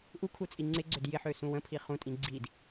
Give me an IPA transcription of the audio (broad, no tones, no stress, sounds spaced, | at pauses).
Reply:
ʔ u kʰ u t͡sʼ i ŋ͡ǀ ɪ ɡ͡ǀ ø d j ɪ ħ ø s ũ w ə̃ pʰ i χ ũ tʼ ĩ ɡ͡ǀ i d